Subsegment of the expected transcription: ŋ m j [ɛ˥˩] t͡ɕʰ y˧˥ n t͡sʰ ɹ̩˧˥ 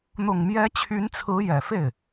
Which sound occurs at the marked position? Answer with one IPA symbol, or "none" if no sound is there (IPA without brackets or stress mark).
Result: ɛ˧˥